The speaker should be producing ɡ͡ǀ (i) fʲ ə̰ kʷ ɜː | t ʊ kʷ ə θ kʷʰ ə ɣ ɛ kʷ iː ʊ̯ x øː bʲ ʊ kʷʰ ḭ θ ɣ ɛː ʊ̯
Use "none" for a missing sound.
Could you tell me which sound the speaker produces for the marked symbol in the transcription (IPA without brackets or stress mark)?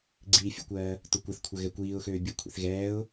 iː